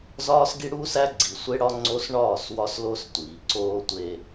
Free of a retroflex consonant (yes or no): no